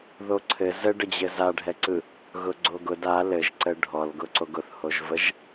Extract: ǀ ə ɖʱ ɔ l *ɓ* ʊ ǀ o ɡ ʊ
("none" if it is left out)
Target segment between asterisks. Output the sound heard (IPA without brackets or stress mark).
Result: ɡ